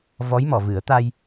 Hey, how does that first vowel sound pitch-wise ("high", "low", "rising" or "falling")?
rising